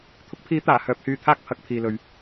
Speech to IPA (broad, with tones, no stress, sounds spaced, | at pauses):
t̪ʰ ʊ˨˥ k̚ pʰ iː˨˥ t̪ aː˨˩ h œː˨˥ p̚ h yː˧ t̪ʰ aː˥ k̚ pʰ ɐ˨˥ k̚ pʰ iː˨ l ɵ˨ ɥ